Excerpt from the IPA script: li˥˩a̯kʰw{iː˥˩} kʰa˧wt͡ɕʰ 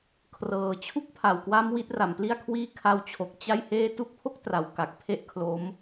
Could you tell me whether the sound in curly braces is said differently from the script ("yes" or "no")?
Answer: no